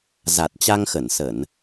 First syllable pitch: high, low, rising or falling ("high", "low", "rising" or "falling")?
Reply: low